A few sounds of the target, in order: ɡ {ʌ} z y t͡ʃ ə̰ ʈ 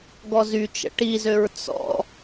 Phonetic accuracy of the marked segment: incorrect: ɔ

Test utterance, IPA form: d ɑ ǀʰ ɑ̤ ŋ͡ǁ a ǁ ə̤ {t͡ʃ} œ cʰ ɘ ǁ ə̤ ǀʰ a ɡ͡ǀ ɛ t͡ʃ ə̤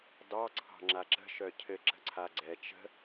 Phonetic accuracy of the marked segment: incorrect: ʃ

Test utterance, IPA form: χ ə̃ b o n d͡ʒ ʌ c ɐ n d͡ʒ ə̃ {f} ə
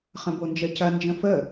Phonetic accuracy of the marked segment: correct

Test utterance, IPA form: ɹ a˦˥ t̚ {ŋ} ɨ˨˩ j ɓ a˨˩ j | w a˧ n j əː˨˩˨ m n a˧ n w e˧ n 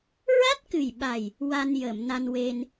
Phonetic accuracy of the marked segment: incorrect: k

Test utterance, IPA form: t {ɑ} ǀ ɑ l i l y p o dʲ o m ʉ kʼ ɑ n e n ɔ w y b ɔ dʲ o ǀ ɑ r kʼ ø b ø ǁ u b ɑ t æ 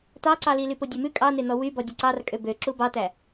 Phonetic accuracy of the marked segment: correct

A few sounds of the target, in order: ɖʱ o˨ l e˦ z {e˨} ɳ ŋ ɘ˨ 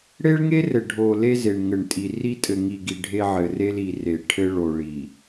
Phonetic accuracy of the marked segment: correct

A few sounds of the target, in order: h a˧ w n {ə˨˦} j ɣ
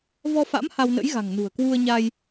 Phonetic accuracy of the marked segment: incorrect: ə̰˧˥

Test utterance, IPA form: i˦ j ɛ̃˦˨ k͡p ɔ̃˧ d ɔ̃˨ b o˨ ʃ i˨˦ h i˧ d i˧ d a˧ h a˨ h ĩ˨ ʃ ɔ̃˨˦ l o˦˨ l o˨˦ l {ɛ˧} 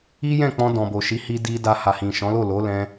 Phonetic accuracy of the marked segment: incorrect: ɛ̃˧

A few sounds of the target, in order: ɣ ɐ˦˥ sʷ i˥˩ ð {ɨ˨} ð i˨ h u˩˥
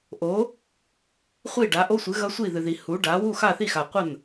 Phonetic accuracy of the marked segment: correct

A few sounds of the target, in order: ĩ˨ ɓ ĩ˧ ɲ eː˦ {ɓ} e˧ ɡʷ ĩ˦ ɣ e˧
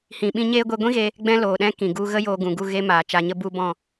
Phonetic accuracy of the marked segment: incorrect: ɡʷ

